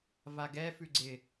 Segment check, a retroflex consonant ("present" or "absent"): absent